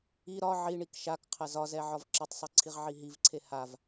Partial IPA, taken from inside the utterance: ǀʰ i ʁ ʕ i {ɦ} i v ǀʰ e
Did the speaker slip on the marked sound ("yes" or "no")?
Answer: no